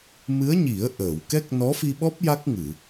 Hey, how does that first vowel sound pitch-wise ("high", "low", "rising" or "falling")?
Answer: rising